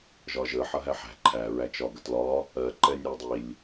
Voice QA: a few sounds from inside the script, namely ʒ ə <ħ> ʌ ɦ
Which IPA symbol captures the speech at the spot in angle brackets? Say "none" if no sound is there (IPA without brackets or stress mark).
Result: ħ